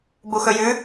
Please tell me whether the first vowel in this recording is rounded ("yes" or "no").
yes